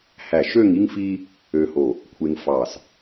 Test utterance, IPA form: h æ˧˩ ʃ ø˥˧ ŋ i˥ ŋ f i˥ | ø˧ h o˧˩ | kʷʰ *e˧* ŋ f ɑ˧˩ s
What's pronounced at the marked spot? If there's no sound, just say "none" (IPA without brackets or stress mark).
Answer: e˧